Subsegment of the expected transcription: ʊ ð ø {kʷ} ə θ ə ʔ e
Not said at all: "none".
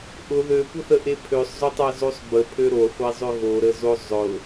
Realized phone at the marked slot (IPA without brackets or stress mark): kʷ